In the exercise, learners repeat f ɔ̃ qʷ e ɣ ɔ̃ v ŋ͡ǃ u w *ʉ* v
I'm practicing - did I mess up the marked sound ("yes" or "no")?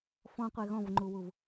yes